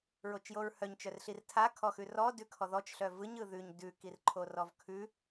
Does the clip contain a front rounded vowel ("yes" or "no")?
yes